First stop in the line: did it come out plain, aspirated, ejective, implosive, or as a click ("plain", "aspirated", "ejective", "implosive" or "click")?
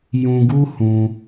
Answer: plain